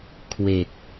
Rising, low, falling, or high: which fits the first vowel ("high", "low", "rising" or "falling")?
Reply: low